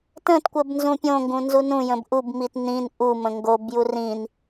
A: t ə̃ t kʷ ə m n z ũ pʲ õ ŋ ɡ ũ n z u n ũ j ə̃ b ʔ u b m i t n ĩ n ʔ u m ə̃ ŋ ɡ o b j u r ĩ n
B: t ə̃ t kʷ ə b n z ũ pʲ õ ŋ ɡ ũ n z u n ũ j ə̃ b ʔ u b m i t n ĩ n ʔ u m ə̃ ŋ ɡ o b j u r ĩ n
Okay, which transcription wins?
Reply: B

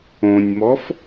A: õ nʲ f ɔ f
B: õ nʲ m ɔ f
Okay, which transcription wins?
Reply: B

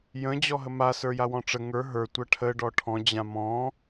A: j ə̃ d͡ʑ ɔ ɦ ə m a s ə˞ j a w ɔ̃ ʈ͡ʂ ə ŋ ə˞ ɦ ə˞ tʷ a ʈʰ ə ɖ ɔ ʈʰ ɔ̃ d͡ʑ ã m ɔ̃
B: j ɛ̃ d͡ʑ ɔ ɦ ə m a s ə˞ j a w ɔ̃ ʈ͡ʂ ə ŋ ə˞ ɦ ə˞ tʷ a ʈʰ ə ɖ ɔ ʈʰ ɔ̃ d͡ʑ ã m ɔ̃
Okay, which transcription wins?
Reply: A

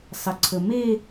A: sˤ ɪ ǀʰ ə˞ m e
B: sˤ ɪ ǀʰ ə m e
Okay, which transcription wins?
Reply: B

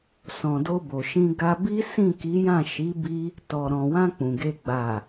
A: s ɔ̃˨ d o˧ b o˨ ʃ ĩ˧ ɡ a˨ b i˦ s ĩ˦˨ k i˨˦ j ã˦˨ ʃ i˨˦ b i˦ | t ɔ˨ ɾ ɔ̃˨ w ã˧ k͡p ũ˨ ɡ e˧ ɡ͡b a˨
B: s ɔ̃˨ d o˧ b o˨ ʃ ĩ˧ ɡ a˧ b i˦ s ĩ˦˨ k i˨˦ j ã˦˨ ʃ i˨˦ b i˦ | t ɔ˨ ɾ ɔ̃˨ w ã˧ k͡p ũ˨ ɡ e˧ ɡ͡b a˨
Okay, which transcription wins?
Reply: B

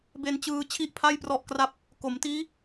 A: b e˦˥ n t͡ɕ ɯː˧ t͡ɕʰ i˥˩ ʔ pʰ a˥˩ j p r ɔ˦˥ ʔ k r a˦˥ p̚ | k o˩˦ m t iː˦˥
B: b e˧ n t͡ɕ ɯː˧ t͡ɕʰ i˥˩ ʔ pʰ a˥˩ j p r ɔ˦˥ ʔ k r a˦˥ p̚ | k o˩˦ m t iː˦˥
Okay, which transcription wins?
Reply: B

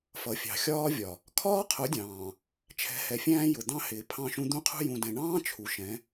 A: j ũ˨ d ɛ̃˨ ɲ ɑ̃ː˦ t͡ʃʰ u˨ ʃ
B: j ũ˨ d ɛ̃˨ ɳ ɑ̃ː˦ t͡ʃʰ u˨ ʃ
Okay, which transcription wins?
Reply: B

